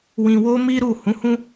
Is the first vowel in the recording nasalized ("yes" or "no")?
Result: yes